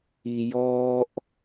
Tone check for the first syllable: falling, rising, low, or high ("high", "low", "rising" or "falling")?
high